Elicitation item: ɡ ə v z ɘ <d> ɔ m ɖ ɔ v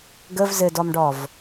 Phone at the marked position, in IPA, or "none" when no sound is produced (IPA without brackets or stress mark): d